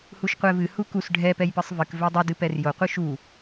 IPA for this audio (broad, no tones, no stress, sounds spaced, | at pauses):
h u ʃ qʷ ɛ v ɨ h u k u s ɖʱ ɛ p ɛ j p ɨ sˤ v ɨ k v ɛ dˤ u d ɨ p ɛ r j o qʷ ɨ ʃ u